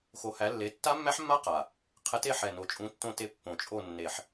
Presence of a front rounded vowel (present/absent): absent